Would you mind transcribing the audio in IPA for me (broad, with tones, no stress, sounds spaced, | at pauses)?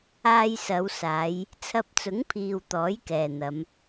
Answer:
aː˧ j s ɐ˨˧ w s aː˨˧ j | t͡sʰ ɐ˧ p̚ t͡s ʊ˨˥ ŋ pʰ iː˨ w t̪ ɔː˨˥ j k ɛː˨ n̪ ɐ˨˧ m